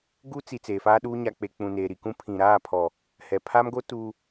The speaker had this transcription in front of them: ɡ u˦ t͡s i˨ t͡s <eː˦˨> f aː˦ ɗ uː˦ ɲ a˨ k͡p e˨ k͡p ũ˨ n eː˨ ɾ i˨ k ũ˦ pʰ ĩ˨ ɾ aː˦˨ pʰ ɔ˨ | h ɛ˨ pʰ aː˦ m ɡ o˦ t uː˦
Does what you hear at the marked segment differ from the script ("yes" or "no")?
yes